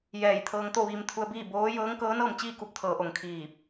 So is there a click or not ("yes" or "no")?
no